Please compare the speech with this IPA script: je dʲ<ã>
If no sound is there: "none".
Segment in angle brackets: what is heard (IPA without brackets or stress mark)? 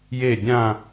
ã